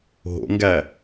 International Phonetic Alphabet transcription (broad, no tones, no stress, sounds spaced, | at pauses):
ɦ o̰ ŋ ɡ æ